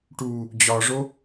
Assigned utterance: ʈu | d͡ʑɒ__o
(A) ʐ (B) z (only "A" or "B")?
A